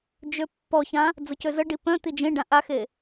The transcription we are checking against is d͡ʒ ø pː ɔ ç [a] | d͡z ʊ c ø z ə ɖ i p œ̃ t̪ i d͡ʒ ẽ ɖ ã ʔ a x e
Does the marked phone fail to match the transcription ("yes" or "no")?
yes